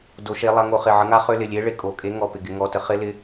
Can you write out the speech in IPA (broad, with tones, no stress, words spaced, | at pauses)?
do˨˦ʃe˨˦lˠa˨˦ ŋo˨˦χɪ˩˧˩ ʕə˨˦ŋa˨˦ χø˨˦lɪ˩˧˩lʲe˨˦ ɭe˨˦kʼo˩˧˩ kʼe˨˦ŋɔ˩˧˩ pɪ˩˧˩ɡɪ˨˦ ŋɔ˩˧˩tə˨˦χɪ˨˦ lɪ˨˦